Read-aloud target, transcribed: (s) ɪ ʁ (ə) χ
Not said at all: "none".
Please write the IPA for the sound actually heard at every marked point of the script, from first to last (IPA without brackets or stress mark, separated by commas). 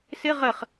s, ə